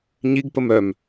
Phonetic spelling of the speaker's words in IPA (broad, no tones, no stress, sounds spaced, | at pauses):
ɲ i ɡ p ə m œ m